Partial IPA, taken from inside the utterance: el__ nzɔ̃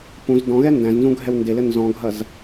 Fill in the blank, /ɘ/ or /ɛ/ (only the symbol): ɘ